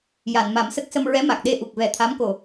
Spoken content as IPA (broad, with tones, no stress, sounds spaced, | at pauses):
j a˨˩˨ n m a˨˩˦ m s ə˦˥ k̚ s ə˧ m ɹ ɛ˧˥ m a˨˩ k̚ ɗ e˧ ʔ u˨˩ k̚ v ɛ˨˩˦ t̪ʰ a˧˥ m k o˨˩